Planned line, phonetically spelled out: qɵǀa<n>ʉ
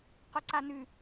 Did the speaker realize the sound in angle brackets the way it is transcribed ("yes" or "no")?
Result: yes